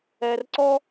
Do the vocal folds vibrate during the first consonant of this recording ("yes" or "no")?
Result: yes